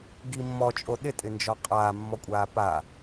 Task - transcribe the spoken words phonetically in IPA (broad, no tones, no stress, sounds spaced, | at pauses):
ɡ i mː ɔ t͡ʃʼ o ɗ ɪ tʼ ɪ n d͡ʒ ɔ qʼ aː mː ɔ kʷʼ aː p a